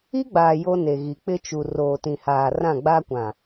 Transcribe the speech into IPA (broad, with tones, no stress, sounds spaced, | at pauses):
i˦ ɡ͡b aː˨ j o˦ n e˨ ɣ i˨ k͡p ɪ˦ t͡ʃ u˨ r oː˨ t ĩ˨ h aː˨ r ã˦˨ ɡ͡b aː˦ kʷ ã˨